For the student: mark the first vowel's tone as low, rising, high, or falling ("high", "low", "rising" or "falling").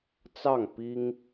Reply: falling